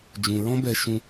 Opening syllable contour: low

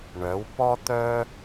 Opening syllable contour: rising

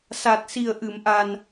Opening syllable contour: low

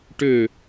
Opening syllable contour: falling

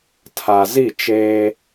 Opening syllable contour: low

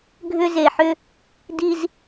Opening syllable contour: high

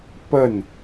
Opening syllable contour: falling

